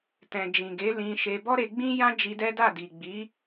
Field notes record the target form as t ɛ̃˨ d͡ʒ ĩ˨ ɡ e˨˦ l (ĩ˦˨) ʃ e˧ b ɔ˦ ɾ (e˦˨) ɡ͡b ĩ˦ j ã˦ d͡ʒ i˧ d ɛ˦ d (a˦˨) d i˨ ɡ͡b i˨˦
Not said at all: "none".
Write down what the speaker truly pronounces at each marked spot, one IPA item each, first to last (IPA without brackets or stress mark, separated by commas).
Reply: ĩ˧, e˧, a˦˨